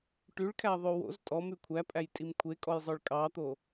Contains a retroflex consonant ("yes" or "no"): yes